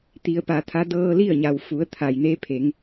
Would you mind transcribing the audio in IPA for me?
t̪ i˩˧ ə̯ p a˩ t̪ʰ a˧˥ d ɤː˧ l i˥˨ ə̯ ɲ a˩ w f u˩˧ ə̯ t̪ʰ a˩ j n e˧˥ pʰ e˩˧ ŋ

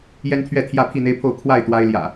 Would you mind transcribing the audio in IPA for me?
j ɛ˦ n t̪ʰ ɥ ɛ˥˨ t̪ʰ j ä˥˨ pʰ i˥˨ n̪ e˦ ɪ̯ pʰ o˥˨ ʊ̯ kʰ w a˥˨ ɪ̯ t̪ w a˦ ɪ̯ l j ä̰˨˩

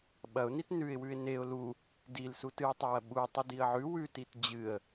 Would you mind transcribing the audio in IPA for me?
ɓ ɐ ʊ̯ n i t n ʉ ɪ̯ w ʉ ɪ̯ n e ʊ̯ l u | d i l s u t ɨ ə̯ tˤ e w ɐ ɓ u tˤ ɨ d i ə̯ ʕ ʉ w ʉ t i t d͡ʑ ɨ ə̯

